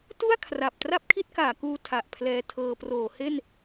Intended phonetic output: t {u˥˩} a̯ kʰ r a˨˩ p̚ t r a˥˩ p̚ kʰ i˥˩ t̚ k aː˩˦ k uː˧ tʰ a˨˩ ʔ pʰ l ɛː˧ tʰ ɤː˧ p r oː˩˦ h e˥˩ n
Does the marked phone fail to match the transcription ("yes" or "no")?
no